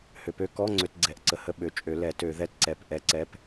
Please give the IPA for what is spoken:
hø˨˩˦pø˧˥˧ kɔ˧˥˧ ŋ͡ǀø˧˥˧tɡ͡ǀɛ˨˩˦ʔǀə˨˩˦hə˧˥˧ ɓø˨˩˦t͡ʃʼø˨˩˦ lɛ˨˩˦ tø˨˩˦ðɛ˧˥˧tǀɛ˨˩˦p ʔɛ˨˩˦ǀɛ˧˥˧p

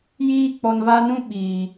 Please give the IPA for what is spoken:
jiː˦k͡pɔ˧nva˦nũ˦ ɓiː˨

